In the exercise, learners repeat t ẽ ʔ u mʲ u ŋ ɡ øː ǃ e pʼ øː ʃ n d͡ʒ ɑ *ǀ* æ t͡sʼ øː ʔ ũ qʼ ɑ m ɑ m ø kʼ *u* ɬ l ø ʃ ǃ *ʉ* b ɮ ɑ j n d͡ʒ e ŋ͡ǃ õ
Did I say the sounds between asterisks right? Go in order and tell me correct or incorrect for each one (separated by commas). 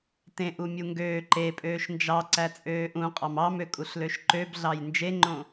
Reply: correct, correct, incorrect